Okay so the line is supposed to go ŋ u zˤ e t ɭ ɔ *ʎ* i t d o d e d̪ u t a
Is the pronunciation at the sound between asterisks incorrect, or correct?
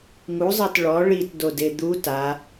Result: incorrect